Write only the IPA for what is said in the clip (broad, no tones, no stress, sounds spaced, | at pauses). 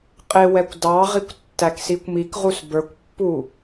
qʼ ɪ w ɛ kʷ d ɑ ʁ i kʷ tː æ k s i kʷ m i k ʁ u s b ə˞ kʷ pː u